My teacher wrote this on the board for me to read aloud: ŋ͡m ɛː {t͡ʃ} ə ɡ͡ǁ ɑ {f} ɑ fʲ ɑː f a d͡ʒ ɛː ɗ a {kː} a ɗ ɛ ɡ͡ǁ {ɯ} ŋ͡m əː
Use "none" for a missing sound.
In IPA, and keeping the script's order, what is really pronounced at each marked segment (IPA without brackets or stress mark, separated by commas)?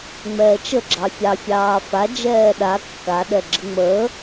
t͡ʃ, fʲ, kː, ə